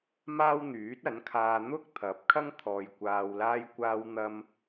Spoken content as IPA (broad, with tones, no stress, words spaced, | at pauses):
maː˥wn̪yː˨˥t̚ɐ˨˥nkʰaː˧ n̪ʊ˥k̚ t̪ʰɐ˨˥p̚kʰɐ˥ŋ t̪ʰɔː˧jkʷaː˧w laː˧jkʷaː˧wn̪ɐ˧m